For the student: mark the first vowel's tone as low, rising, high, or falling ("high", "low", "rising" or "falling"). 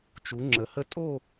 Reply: rising